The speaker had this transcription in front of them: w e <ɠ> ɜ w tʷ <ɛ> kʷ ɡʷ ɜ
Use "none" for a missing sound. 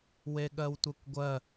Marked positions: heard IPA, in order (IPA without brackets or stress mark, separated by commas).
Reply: ɠ, ɛ